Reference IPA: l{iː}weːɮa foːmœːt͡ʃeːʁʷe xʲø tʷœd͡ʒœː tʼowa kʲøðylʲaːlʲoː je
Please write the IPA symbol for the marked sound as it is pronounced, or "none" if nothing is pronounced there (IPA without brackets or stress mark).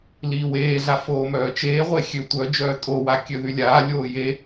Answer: iː